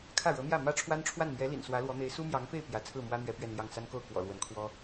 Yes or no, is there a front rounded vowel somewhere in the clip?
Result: no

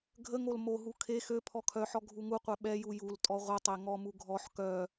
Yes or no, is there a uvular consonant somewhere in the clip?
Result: yes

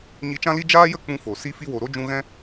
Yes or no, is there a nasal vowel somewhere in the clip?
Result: yes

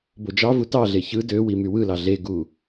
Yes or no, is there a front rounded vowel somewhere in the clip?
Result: yes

